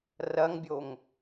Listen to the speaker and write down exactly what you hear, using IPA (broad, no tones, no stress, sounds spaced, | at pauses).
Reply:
r ɐ ŋ bʲ o ŋ